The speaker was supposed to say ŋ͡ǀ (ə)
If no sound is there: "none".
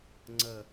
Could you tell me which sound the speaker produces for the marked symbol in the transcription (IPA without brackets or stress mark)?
ə